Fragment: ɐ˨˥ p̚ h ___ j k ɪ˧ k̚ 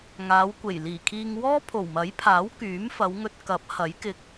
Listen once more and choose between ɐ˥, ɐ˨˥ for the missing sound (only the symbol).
ɐ˨˥